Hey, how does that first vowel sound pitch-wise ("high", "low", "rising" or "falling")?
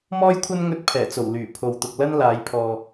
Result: high